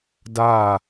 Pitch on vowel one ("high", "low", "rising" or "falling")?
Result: falling